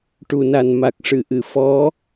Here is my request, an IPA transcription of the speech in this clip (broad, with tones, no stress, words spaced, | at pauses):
ʈu˨˩na˨˩n ma˨˩k̚ ʂɨ˨˩˨ʔɨ˨˩˨ fɔ˧˥